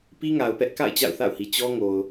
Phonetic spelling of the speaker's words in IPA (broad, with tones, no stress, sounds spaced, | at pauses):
p i˦ ŋ a˨ ʊ̯ p ɛ˦ ʔ k a̰˦˨ ɪ̯ t͡ɕ a̰˦˨ ʊ̯ θ a̰˦˨ ʊ̯ h i˨ t͡ɕ ɔ˦ ŋ o˨ ʊ̯